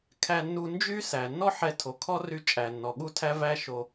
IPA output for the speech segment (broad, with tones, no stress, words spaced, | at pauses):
kʰæ˧nːu˧ nd͡ʒy˦ sæ˨nːɔ˦ ħɛ˧tʰo˨kʰɔ˦ ry˦ t͡ʃʼæ˨nːɔ˨ɠu˦tʰæ˦ væ˦ʃo˧